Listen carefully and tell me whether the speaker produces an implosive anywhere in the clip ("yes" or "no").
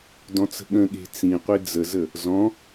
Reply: yes